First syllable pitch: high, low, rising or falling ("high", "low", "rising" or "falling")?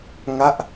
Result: falling